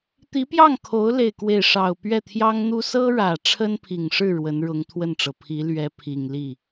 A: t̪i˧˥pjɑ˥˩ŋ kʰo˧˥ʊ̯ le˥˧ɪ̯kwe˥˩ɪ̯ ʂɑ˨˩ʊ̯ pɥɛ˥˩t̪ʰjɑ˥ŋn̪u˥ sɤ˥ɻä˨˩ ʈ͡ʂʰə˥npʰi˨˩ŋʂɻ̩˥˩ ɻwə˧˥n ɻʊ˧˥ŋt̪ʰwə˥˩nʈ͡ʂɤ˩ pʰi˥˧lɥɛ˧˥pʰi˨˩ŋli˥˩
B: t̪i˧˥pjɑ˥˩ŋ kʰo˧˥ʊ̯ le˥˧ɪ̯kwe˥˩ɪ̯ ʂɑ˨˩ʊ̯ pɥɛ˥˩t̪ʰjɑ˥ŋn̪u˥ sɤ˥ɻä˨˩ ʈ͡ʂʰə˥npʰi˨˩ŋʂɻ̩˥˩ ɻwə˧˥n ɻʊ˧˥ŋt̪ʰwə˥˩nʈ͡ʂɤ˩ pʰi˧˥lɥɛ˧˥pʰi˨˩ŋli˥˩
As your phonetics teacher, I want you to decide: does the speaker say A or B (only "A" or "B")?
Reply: B